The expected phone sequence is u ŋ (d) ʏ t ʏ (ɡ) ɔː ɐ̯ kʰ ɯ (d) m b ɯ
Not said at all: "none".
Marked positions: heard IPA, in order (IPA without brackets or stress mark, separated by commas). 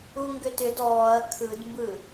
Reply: ɡ, d, d